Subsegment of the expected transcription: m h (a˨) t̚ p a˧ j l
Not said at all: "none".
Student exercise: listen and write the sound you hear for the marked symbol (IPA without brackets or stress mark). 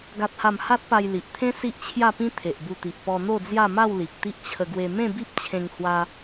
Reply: a˦